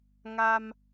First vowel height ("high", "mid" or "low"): low